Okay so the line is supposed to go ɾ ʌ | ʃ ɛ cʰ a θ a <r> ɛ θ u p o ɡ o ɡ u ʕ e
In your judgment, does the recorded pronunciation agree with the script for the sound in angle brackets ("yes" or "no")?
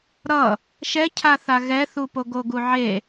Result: no